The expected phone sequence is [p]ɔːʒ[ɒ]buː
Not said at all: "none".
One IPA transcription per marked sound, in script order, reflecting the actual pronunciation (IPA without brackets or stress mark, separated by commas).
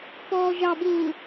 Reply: p, ɑ